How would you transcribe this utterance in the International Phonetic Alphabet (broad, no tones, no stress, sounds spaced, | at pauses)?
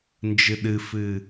n d͡ʒ ɨ ɗ ɨ f ɨ